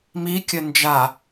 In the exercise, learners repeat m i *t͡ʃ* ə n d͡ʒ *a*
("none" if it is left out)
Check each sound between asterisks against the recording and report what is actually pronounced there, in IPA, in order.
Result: kʲ, a

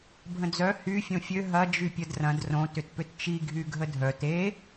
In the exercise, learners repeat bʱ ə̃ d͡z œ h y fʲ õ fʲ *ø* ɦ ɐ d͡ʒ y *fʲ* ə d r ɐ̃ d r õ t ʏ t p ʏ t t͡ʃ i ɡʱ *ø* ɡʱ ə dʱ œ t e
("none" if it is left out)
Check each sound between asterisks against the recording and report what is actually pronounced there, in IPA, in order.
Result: ø, pʲ, y

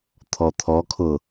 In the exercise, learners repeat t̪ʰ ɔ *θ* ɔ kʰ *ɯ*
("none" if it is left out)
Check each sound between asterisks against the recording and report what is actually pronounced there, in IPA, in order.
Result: t̪ʰ, ʊ

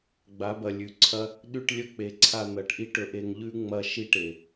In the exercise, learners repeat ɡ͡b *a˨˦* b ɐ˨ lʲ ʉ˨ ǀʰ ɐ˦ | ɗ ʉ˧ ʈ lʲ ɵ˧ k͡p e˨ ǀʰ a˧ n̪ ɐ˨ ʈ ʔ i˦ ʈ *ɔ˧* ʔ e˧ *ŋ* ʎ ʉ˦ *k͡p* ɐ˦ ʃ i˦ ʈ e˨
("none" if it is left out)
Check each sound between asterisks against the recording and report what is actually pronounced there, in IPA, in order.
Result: a˨˦, ɵ˧, ŋ, ŋ͡m

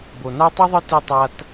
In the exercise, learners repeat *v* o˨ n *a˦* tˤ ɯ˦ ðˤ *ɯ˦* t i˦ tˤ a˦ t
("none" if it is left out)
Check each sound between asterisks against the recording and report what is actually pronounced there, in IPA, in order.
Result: b, a˦, ɯ˦

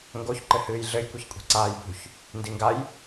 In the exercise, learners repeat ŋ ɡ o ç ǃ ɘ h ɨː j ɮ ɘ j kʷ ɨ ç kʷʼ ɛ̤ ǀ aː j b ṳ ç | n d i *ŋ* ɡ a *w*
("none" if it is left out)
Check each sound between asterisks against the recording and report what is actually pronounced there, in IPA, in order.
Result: ŋ, j

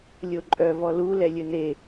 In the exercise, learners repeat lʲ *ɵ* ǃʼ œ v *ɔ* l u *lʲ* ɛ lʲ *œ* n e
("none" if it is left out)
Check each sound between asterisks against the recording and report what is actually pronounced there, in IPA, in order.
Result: o, ɔ, l, ɵ

